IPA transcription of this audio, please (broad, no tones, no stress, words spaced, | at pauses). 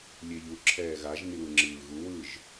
lʲeʎu ǁʰɛːɣaʒ niwɯŋ͡ǁɯːɣu wɯʒ